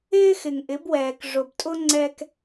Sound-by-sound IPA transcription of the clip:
ɪː˦xɪ˨ŋʔɪ˨˦bwɛː˨k ʐʊ˨btʼʊ˦ ŋ͡ǀɛ˦k

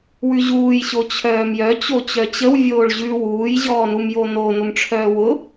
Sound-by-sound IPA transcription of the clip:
wʉʑuːjɕo t͡ɕʰœːmjœt͡ɕo t͡ɕœt͡ɕəw vʲoːɭʑʉ wuːjʑɔːnumjo no nʊmʈ͡ʂʰœːwʊ

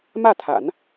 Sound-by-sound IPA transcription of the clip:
mä˥˩t̪ʰa̰˨˩˦n

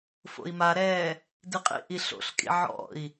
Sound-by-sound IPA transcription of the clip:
fo̰i̯maɾɛː | diqʼḭʔi ɬo̰ɬkʼḭ ʕɔ̰i̯

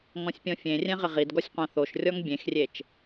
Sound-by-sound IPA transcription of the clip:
ŋɔ̃sʲpʲɔ̃fʲẽrʲɛ̃ ʁɪʁidɡɔsʲ qʷãθoʃrʲɔŋ bʲẽxrʲet͡ʃ

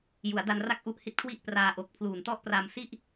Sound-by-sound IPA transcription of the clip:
ju˩˦a̯da˧nra˥˩k̚ʔu˦˥ʔ hi˦˥t̚kʰwi˥˩ʔpraː˧ ʔo˨˩k̚ pʰluː˨˩ntɔ˥˩ʔpra˧m si˥˩ʔ

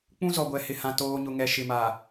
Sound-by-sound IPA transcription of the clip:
k͡pũ˦zɔ˨ ɡʷɛ˨hɪ˨hã˨ toː˨ɲʊ˨ŋɛ˨ ʃɪ˨ma˨

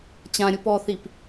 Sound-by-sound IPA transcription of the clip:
t͡ɕã ɾʲupɔθip

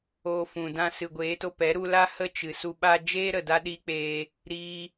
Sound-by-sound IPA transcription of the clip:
o˧fũ˨ dã˧sɨ˨ɡʷeː˨˦to˧ pɛ˨˦ɾu˧la˦ hə˦t͡ʃɨ˨su˧ɓa˦ d͡ʒeː˦ɾə˨ da˦ɗiː˦k͡peː˧ | ɾiː˧

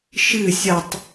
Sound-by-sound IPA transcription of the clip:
ʃɨ sʲɐtˤ

